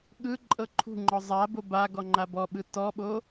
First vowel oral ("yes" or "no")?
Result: yes